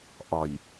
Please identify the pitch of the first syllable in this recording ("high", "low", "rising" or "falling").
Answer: low